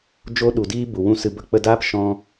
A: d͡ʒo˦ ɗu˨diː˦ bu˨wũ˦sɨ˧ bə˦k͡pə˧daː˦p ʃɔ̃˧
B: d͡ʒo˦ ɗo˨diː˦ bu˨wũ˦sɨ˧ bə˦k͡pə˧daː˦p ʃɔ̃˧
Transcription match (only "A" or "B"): A